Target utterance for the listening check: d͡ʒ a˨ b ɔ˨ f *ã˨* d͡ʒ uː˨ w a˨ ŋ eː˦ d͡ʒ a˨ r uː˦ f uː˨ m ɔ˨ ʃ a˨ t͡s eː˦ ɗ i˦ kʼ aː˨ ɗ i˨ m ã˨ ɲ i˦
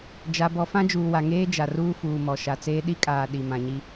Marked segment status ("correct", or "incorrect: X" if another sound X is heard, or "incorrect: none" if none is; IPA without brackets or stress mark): incorrect: ã˦